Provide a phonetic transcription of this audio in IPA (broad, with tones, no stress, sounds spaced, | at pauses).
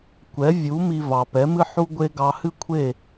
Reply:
kʷ ɛ˩˥ vʲ u˩˥ m i˧ v ɑ˩ p ɛ˩˥ m ɨ˥ ħ u˥ ɡʷ e˥ ɡ ɑ˧ h ɨ˥ kʷʰ e˥˩